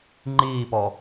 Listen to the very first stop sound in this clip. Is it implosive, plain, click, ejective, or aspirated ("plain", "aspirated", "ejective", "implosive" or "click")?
click